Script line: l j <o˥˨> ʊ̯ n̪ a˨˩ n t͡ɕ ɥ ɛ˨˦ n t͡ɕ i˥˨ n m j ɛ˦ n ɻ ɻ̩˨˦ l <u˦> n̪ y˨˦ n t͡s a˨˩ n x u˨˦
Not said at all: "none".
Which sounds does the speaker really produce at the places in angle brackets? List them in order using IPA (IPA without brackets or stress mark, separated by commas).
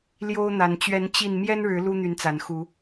o˦, u˦